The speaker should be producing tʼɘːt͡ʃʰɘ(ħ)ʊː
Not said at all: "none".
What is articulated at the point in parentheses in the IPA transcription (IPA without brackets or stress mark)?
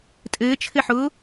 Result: ħ